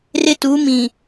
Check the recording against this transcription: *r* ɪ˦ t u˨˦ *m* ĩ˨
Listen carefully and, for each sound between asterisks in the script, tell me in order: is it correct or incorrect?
correct, correct

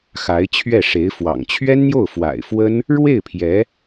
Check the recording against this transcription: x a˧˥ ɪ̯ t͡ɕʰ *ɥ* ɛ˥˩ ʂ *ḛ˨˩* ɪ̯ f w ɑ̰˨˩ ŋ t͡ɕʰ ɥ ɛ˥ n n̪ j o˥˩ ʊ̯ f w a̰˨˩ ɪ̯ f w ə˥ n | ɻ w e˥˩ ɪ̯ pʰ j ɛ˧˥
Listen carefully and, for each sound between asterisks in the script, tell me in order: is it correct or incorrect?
correct, incorrect

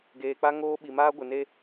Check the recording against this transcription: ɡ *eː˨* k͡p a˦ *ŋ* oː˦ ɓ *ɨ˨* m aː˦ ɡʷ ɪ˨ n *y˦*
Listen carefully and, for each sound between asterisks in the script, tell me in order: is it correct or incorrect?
correct, correct, incorrect, incorrect

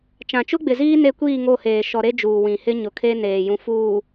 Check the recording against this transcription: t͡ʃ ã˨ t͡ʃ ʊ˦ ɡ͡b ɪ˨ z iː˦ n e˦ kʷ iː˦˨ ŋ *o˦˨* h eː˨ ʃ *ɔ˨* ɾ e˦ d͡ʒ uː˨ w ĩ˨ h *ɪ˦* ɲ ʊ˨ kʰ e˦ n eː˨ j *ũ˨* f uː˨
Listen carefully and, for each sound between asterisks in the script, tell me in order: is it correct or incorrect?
correct, correct, correct, correct

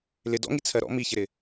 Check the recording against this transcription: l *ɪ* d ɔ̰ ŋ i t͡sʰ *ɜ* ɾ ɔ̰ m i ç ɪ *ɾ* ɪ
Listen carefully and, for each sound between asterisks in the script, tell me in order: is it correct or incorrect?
correct, correct, correct

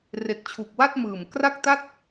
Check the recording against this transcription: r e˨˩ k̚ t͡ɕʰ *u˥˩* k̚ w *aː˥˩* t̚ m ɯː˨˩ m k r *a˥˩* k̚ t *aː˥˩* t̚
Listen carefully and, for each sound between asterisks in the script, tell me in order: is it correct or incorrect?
incorrect, incorrect, correct, incorrect

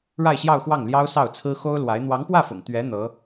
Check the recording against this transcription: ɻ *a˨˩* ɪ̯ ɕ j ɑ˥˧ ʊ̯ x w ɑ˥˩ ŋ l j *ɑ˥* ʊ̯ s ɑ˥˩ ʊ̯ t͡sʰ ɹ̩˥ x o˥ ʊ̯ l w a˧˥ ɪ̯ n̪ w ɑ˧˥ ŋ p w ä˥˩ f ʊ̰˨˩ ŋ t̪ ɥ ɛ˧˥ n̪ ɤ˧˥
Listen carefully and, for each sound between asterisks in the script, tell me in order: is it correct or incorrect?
incorrect, correct

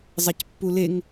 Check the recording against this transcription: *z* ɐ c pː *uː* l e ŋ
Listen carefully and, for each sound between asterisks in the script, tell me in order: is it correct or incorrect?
incorrect, incorrect

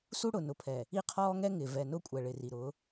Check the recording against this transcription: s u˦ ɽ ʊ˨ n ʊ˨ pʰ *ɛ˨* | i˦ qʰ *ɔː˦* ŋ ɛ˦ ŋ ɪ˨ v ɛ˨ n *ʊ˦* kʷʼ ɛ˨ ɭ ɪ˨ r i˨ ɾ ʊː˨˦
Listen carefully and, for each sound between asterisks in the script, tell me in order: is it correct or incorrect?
correct, correct, correct

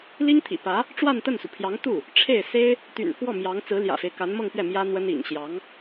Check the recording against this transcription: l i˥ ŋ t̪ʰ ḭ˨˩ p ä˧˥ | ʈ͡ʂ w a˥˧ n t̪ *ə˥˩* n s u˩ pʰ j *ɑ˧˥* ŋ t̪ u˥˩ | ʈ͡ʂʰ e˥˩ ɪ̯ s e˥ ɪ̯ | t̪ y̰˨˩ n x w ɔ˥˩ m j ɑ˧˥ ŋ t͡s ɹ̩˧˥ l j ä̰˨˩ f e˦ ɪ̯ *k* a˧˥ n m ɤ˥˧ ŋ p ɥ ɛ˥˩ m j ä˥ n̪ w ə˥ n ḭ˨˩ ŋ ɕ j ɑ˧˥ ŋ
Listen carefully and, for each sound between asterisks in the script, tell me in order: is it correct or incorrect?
correct, correct, correct

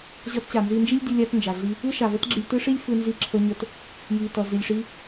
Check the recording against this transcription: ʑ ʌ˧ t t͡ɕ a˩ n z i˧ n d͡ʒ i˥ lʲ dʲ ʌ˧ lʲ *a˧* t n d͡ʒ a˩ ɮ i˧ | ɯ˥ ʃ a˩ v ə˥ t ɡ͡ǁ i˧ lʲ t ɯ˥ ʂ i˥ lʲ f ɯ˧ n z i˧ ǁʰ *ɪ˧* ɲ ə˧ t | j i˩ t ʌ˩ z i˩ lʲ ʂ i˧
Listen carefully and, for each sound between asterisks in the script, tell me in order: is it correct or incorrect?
correct, incorrect

